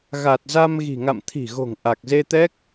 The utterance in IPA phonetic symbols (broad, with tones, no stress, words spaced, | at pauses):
ɣa˨˩t̚za˧mɣi̤˨˩ ŋa̰˧˨mt̪ʰi̤˨˩ɣo̤˨˩ŋ ʔa˨˩k̚ze˧t̪ɛ˦˥k̚